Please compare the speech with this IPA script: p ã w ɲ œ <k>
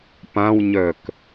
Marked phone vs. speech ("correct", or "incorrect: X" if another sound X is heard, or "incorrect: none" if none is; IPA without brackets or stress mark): correct